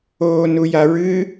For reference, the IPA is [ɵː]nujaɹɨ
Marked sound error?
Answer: yes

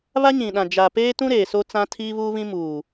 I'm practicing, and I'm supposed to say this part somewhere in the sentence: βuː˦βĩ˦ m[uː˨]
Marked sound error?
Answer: no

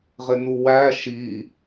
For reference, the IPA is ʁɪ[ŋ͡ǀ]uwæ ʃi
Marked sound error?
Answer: yes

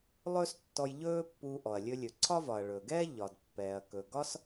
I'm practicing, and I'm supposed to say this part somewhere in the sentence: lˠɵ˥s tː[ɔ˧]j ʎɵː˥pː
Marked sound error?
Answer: no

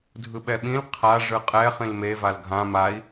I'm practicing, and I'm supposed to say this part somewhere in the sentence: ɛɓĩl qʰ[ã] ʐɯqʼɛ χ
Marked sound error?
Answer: yes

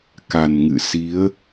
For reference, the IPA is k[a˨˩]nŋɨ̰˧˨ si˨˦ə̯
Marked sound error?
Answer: no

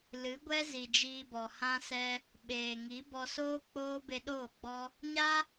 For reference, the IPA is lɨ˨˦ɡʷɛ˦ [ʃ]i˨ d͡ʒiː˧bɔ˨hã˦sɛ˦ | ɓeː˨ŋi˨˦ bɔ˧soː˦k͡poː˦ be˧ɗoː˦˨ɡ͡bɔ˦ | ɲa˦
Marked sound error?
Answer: yes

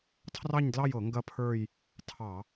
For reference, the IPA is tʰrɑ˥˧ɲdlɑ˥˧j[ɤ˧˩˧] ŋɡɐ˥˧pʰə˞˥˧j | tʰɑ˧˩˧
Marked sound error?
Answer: no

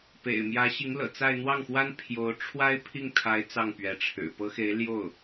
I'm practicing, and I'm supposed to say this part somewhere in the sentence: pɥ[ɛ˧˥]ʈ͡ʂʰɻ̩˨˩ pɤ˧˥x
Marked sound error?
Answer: no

